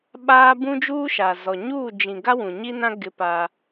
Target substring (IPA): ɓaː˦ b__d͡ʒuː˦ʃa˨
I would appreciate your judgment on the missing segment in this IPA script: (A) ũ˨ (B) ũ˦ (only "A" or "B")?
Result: B